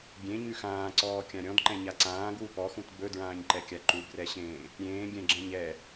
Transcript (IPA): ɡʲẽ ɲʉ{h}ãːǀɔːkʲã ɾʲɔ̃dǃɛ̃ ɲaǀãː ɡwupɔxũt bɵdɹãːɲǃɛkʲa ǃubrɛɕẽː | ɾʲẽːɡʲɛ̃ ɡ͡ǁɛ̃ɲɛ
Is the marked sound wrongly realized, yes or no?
yes